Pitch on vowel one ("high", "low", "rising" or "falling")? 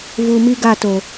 low